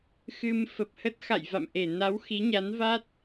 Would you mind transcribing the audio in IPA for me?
xɨ˧m fə˨˩p̚hə˦˥t̚ xa̰˧˨jva̰˧˨mʔe˧˩ na˨˦w xi˨˦ɲa˨˦n va˦˥t̚

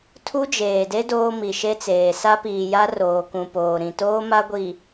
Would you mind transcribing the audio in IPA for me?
tʰu˦d͡ʒeː˨de˦ doː˦mi˨ʃe˦t͡seː˨ sa˦piː˨ja˦ roː˨kũ˨poː˨ ɾĩ˨toː˦ ma˦ɡʷi˨

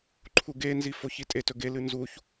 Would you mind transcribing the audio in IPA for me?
ǃʰuɡenzi foçitʼetɵ ɡelɨ nzuç

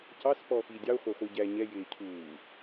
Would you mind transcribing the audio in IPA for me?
cɑs pɔːxiːdʲɑo̯ χʷæχʷi ɟæ ɲɛ jɪː cʰuː

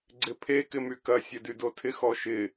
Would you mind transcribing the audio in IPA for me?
ɡ͡ǀɪpʰe kɪmykɐ sʲɐdydotʰɪx ɔʃɪ

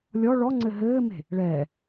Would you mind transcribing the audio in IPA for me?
lʲɔ ɭɔŋ͡ǀɘ ɦɘːme̤ | ɭɛː

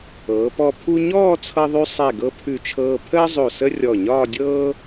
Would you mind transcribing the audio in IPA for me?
ɤː˩˧pɔ˧ pʰu˧ɲɔː˥˧t͡sʰɤ˧ðˤʉ˧ sˤɛ˧˩ɡɤ˧ pʰʉ˧˩t͡ʃʰɤː˧ pʰəː˥zˤo˧˩ sə˥ rʲɔ˧˩ ɲɒː˥˧dʲɤː˥

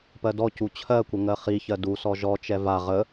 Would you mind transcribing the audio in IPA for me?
pɜdɔcu t͡ɕʰɜkʷə ŋɜχiçɜ dusɔ ʒɔt͡ʃɛ va ʁə

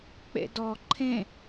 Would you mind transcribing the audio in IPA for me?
k͡pḛdɔ ǃʰẽ

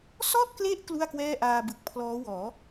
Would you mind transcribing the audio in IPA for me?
sɔ˥˩ʔkle˦˥ʔ klu˥˩a̯kwɛː˥˩ʔaː˧bɯ˨˩k̚ pʰlɔː˦˥wɔː˩˦

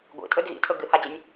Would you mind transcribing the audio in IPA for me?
ɡʷḭtʼɵd ɣḭtʰɵ ɡɨhad͡ʑenʲ

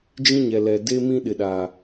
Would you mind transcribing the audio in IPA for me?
d͡ʒĩ˦ɲɛ˨ lɛ˨ de˦mĩ˦ ɗɪ˨ɗa˨

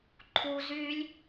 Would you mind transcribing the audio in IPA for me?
ǃʰu zylʲ

